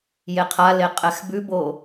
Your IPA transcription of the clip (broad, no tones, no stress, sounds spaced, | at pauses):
j e qʰ a l e qʼ ɛ x b ʉ b o